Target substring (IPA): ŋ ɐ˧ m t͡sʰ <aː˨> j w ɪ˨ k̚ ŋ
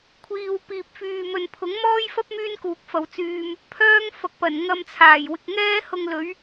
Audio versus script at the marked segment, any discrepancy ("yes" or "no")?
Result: yes